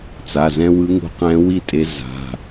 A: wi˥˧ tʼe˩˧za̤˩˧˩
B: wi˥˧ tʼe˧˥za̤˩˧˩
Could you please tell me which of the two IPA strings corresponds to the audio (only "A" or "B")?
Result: B